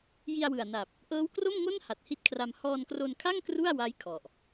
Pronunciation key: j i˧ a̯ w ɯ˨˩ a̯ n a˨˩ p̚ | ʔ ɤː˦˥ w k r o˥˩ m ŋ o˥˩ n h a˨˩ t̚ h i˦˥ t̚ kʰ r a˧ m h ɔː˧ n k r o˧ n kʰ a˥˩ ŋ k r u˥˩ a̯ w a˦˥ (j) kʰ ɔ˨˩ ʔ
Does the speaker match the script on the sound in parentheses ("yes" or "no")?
yes